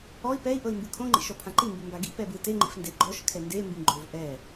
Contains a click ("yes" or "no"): yes